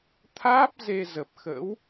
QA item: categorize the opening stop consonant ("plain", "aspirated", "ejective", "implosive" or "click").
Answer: aspirated